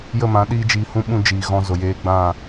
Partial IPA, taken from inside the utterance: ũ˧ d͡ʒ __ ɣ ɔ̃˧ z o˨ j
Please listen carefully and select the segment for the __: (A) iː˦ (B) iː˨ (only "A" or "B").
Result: B